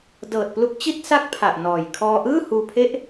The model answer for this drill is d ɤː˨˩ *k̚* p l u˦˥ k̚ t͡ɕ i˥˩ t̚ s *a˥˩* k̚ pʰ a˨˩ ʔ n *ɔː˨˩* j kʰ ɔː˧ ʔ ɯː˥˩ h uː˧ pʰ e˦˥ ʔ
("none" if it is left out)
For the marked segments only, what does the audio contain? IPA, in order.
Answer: t̚, a˥˩, ɔː˨˩

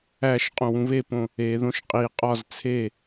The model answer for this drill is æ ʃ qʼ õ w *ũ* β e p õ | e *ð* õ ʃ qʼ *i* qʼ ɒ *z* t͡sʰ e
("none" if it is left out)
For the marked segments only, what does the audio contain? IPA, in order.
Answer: ũ, ð, i, z

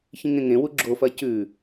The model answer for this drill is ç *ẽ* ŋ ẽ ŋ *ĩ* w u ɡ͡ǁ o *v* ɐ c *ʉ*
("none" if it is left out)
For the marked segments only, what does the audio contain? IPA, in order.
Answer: ĩ, ẽ, f, ʉ

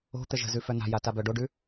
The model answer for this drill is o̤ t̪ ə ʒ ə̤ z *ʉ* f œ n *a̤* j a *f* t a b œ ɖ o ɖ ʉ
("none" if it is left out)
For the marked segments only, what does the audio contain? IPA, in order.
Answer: ʉ, a̤, none

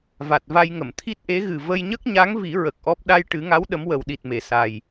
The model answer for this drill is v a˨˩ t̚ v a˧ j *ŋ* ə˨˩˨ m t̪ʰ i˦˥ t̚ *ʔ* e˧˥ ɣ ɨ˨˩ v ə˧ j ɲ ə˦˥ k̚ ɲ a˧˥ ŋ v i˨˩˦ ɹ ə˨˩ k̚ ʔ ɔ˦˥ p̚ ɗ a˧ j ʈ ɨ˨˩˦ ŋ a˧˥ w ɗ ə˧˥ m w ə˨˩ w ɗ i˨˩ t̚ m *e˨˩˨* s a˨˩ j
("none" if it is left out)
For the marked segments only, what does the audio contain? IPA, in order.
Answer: ŋ, ʔ, e˨˩˨

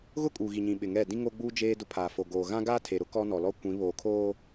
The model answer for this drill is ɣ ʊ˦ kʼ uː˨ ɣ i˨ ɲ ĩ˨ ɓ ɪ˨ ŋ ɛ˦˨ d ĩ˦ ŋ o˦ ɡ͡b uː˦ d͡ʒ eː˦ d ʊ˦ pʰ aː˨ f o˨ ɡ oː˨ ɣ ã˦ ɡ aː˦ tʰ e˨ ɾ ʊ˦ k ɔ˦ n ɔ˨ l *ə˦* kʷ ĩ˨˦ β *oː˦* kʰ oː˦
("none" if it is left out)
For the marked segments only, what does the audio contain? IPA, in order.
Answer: ɔ˦, oː˨

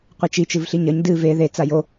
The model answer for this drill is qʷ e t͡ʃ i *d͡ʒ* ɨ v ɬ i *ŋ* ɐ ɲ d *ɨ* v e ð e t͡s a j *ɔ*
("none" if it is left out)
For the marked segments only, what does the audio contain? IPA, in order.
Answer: t͡ʃ, ɲ, ɨ, o

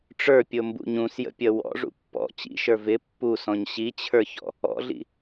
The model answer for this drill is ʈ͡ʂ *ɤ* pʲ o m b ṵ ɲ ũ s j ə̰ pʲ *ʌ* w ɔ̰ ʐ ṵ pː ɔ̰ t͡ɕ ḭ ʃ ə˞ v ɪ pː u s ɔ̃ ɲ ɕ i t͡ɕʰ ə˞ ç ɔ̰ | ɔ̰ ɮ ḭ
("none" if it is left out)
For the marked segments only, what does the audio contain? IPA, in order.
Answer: ə˞, ʌ

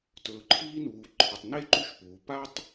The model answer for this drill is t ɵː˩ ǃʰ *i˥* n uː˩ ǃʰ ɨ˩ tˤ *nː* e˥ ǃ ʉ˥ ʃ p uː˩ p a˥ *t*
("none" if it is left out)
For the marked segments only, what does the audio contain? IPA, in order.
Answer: iː˥, n, tˤ

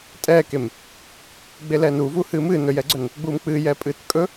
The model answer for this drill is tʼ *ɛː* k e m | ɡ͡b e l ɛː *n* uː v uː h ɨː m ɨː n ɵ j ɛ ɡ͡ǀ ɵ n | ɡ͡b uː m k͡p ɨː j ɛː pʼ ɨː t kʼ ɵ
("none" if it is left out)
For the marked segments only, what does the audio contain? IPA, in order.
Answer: ɛː, n

